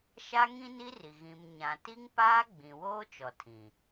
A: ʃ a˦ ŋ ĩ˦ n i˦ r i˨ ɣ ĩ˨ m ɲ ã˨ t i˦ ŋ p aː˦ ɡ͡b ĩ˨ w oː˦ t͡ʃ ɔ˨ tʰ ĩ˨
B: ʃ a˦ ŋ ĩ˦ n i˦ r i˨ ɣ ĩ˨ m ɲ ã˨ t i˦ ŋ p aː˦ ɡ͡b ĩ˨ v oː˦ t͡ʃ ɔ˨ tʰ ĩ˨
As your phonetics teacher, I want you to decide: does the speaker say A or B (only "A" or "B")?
A